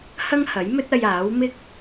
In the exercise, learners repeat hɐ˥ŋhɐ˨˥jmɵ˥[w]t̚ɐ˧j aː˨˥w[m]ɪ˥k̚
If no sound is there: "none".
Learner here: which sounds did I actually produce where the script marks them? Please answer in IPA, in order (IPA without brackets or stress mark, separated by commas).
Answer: none, m